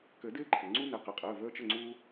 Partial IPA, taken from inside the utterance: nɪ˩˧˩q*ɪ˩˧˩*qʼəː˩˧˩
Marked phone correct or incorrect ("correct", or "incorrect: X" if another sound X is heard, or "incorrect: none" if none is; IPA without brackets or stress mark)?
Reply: correct